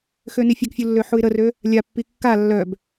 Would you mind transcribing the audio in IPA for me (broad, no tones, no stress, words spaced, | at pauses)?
xønifʲəɡfʲu lːøħuɪ̯ɾərø | lʲapːi kːa lːœb